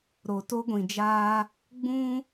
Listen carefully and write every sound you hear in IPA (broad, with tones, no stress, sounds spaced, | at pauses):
ɾ o˨ t o˦ ɡʷ ĩ˨ d͡ʒ aː˦ | ɡ͡b ũ˦